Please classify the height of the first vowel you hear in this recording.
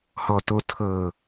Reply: mid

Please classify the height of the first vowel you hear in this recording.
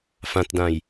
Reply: low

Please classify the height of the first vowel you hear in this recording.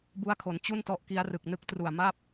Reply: high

